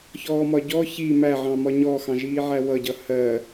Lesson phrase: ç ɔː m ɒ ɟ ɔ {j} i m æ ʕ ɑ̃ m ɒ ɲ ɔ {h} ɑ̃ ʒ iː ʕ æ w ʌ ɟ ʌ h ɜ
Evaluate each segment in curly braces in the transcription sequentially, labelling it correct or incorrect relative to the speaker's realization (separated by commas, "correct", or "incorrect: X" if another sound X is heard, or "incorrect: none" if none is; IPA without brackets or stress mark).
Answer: incorrect: ç, incorrect: x